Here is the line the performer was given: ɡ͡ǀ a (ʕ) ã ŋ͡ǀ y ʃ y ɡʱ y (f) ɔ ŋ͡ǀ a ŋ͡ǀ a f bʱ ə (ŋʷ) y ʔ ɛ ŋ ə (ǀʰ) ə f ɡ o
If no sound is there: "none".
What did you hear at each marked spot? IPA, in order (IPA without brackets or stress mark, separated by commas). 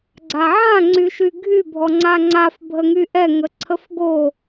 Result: ʕ, bʱ, ŋ, ǀʰ